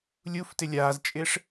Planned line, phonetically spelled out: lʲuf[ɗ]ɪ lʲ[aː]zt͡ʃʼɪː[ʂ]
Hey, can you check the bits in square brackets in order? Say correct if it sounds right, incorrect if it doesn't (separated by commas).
incorrect, correct, correct